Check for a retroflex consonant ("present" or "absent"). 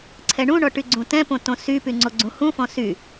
present